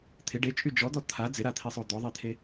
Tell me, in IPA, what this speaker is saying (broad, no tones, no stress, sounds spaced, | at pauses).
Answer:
t̪ʰ ɪ ɖ e t͡ʃʼ y d͡ʒ ɔ d̪ ɔ t̪ʰ a d͡z ɪ ɾ a t̪ʰ i sˤ o d̪ ɔ ðˤ e t̪ʰ e